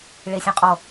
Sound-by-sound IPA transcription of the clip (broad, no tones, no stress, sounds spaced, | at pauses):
ɭ e sʲ õ qʼ ɔ